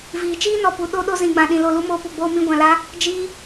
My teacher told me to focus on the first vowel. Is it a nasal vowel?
no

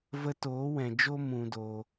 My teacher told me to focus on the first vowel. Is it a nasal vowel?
no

